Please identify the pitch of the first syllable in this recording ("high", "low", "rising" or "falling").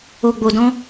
low